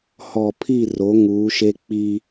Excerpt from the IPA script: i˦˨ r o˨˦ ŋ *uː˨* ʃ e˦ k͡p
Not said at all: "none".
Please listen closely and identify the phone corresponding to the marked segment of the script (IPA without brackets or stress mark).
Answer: uː˨˦